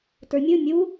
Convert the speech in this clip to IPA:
t ə˞ mʲ ɯ mʲ u

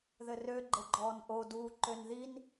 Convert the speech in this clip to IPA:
ð ɘ r ø ɡ͡ǃ ɘ ɡ͡ǃ ɔː n ʔ o d uː ǃ ø n ð i n

